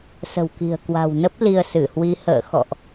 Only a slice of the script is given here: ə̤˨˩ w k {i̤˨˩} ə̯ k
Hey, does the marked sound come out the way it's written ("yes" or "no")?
yes